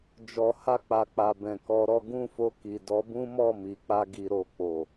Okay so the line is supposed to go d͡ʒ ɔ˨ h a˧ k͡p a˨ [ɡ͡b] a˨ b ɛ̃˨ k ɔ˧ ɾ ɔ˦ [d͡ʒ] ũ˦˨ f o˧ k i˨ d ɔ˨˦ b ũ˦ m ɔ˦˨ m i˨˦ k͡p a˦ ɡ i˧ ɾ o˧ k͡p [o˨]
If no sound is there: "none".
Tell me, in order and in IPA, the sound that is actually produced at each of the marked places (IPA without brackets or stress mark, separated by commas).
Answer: k͡p, ɡ, o˨